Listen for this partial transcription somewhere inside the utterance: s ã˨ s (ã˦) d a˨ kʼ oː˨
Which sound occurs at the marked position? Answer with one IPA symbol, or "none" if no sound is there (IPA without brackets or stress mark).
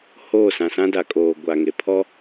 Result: ã˦